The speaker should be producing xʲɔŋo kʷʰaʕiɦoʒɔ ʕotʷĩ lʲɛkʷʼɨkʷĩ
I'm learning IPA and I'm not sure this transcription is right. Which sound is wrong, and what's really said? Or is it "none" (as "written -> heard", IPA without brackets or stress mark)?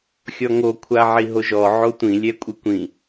none